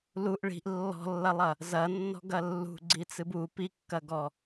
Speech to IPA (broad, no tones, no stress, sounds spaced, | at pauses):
l u ʔ ɭ i̤ ʔ lː ɔ̤ lː ɐ lˠ ɐ | z ɐ nː ɔ̤ ɡ ɐ lː ṳ ɡ͡ǀ i t͡s ɨ b u p i kː ɐ ɡ ɔ